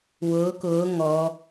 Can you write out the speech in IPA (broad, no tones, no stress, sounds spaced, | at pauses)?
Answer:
w ʊː k ʊː ŋ ɔ